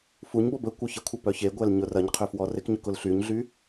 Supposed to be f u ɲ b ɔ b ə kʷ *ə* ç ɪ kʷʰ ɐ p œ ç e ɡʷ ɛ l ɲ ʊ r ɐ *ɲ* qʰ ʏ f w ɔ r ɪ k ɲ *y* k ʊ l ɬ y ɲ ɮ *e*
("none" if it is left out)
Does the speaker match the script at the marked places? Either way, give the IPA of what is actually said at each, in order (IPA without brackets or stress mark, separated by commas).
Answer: œ, ɲ, ʏ, y